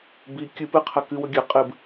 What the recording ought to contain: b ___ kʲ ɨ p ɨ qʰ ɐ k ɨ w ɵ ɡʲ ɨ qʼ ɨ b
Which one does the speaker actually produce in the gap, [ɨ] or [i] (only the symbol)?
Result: i